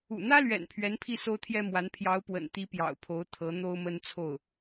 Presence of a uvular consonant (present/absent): absent